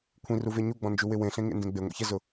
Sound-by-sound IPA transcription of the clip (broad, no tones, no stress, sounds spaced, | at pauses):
kʷʰ ĩ r u v e ɲ u ɡ͡b ɔ̃ n d͡ʒ u w ɪ w ẽ ɬ ẽ ŋ ḛ n d ẽ ɡ͡b e ŋʷ ḭ ç ɛ z ʊ